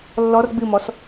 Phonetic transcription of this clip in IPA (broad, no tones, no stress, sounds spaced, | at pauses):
lː ɔ r ɡ͡b ɨ m ɔ s